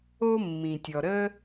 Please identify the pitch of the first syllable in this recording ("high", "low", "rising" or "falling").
high